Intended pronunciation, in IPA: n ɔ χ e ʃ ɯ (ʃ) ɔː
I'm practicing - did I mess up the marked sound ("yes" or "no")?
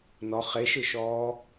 no